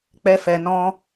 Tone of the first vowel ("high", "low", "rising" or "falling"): high